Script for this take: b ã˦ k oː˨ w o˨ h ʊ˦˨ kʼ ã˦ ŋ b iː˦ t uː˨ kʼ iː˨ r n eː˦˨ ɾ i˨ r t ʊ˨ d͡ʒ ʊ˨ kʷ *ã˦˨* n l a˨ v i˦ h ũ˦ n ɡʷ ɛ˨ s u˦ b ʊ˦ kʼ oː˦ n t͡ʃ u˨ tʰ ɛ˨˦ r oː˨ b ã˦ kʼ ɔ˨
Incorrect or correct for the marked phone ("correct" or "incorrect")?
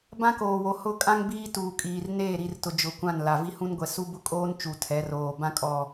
correct